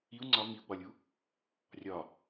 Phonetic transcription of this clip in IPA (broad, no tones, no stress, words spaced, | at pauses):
iu̯ ŋ͡ǀɒ miu̯ɡ͡bɒlʲu | rʲɒ